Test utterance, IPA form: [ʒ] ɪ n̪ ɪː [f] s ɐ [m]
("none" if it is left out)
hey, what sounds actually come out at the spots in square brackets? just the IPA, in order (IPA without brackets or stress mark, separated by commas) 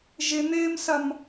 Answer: ʒ, m, m